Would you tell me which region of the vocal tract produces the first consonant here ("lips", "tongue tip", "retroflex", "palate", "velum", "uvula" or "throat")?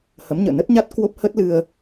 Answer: throat